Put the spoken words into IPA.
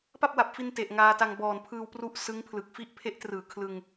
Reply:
p a˥˩ p̚ w a˨˩ p̚ f i˧ n t e˨˩ ʔ ŋ aː˧ t a˧ ŋ b ɔː˨˩ n pʰ ɯː˧ w p r u˦˥ ʔ s ɯ˦˥ ŋ pʰ l ɯ˨˩ k̚ f i˥˩ ʔ pʰ e˦˥ ʔ t r ɯː˨˩ kʰ l ɯ˧ ŋ

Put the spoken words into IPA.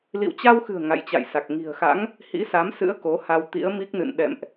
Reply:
l ḭ˧˨ w t͡ɕ a˧ w x ɨ̤˨˩ ə̯ ŋ a̰˧˨ j t͡ɕ a̰˧˨ j s a˨˩ k̚ ŋ i̤˨˩ ə̯ x a̰˧˥ ŋ | h ḭ˧˥ s a˨˦ m s ɨ̰˧˥ ə̯ k o˨˦ h a˧ w t̪ ḭ˧˥ ə̯ m i˦˥ k̚ n ɨ̰˧˨ n ɗ ɛ̰˧˨ m ʔ

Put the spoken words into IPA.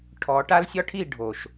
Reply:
ʈʰ ɔ˨˦ ʈ a˦ l sʲ ɒ˦ ʈʰ i˦˨ ɖʱ o˨ ʃ

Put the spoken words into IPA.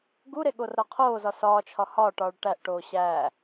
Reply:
ɡ u ɾ e ɠ o r ɾ ɒ qʰ oː z ɒ s ɒː t͡ʃʰ ɒ h ɒː ʈ ɒː ɭ ʈ æ ʔ ʈ oː ɕ æː

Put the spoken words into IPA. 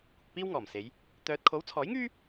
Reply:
kʷ ɪ˨ k̚ p iː˥ w ŋ ɔː˨˩ m s e˨˧ j | t̪ œː˧ t̚ kʰ o˨˥ w t͡sʰ ɔː˨˥ j ŋ yː˥

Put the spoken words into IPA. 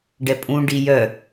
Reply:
ɖ ɛ pʼ ũ ɖ i j œ

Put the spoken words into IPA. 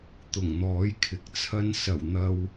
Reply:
t̪ ʊ˨˩ ŋ n̪ ɔː˨˥ j kʰ ɪ˨ k̚ t͡sʰ ɐ˥ n s ɐ˨˩ w n̪ ɐ˧ w

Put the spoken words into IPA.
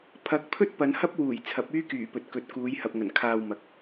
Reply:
pʰ ɐ˨˥ k̚ pʰ ɵ˥ t̚ p ɐ˨˧ n h ɐ˥ p̚ w uː˨˩ j t͡sʰ ɐ˨˥ p̚ yː˥ k yː˨˩ p ɵ˨ t̚ k ɵ˨˥ t̚ k uː˨˧ j h ɐ˨ p̚ ŋ ɐ˨˩ n kʰ aː˨ w m ɐ˨˥ k̚

